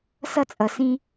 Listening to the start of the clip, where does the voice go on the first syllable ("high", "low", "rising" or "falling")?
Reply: high